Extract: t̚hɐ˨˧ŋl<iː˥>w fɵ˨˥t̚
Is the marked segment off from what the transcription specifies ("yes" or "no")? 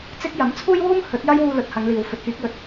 yes